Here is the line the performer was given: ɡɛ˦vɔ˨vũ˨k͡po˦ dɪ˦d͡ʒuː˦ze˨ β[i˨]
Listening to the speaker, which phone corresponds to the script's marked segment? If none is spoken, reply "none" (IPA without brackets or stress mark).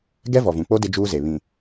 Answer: ĩ˨